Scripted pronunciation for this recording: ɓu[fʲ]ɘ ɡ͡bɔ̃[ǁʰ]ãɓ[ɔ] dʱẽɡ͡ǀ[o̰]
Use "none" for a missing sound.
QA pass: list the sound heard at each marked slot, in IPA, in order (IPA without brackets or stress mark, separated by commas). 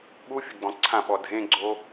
fʲ, ǀʰ, ɔ, o